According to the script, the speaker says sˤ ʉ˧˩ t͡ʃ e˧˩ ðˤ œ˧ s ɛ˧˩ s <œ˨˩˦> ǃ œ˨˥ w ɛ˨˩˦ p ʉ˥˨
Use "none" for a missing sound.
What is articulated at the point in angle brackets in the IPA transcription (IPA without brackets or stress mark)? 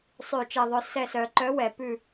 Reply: œ˨˩˦